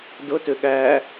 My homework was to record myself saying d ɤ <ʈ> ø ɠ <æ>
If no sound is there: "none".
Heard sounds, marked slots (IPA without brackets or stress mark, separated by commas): t, æ